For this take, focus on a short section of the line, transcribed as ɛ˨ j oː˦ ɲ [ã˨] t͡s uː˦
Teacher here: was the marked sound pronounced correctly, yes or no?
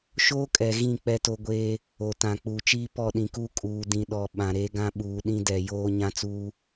no